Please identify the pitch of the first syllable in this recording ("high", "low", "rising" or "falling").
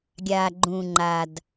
low